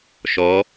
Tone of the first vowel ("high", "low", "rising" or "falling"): rising